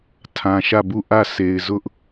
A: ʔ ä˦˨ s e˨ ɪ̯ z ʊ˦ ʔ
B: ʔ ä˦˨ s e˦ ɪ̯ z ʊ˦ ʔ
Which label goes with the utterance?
A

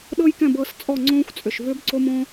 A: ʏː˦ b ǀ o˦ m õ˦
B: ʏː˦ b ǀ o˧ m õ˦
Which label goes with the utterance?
A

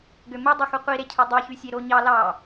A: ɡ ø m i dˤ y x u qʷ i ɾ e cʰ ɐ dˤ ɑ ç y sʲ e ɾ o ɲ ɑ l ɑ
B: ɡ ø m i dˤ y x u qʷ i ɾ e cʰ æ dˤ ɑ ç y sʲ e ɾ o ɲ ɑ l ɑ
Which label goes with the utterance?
B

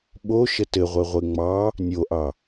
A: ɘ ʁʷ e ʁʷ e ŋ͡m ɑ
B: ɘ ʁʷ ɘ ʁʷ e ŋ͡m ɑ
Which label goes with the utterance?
A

